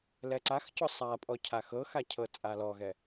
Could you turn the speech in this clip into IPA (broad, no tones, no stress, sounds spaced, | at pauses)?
l ɛ ǀ a x c ɔ sˤ a pʼ ɔ cʰ a x ɤ x a cʰ ɤ t͡sʼ a l ɔ ɣ ɛ